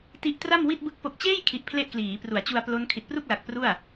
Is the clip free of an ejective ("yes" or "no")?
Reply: yes